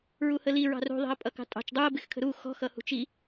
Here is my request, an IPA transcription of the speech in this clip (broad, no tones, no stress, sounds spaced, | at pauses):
ɹ u h ə l i ɹ ɑ̤ r ṳ ðˤ i̤ ə̯ pʼ ʌ k ɑ̤ tʼ ɑ̤ t͡ʃ dˤ u ə̯ b ɪ x kʰ ə̤ ɾ u x ɔ̤ x ʌ h ṳ t͡ʃ i